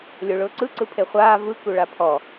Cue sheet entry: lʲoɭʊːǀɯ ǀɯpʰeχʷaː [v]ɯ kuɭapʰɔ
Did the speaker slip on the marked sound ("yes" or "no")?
no